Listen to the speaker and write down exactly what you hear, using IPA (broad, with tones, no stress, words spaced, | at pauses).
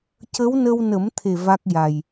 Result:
cə˧˥wnə˧wnə˨˩˦mt̪ʰe˨˩ va˦˥k̚ja˨˩j